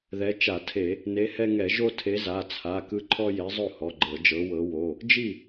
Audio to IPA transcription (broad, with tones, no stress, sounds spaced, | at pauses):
ð ɛ˨˦ t͡ʃ a˧˩˧ tʰ e˧˩˧ | n e˨˦ h ɛ˦ ŋ ɛ˧˩˧ ʒ o˦ tʰ e˨˦ z a˩˧˩ t͡sʰ a˩˧˩ k ɯ˦ ǃʰ ɔ˦ j e˨˦ zˤ o˥˩ h ɔ˩˧˩ ɡ͡ǃ ɤ˧˩˧ d͡ʒ ɤ˨˦ w ɤ˨˦ w o˩˧˩ | d͡ʒ i˥˩